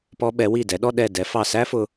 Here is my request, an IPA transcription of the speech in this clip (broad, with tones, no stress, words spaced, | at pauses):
pɔ˧ ɓɛ˩˧wi˧˩dɛ˩˧ɗɔ˥˧ ɗɛ˧˩dɛ˩˧ fɑ˧˩sæ˥fʊ˧